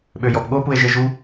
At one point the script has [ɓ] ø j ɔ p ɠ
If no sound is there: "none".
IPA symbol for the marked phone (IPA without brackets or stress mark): ɓ